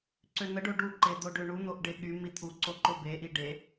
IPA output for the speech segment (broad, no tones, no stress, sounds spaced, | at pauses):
ǀ ø n̪ ə ɖ o ɖ u ǃ e d̪ o ɖ ø ɳ u n̪ o ʔ ɖ e ɠ y m i t̪ʰ u ǀ o ǃ o b e ʔ i ɖ e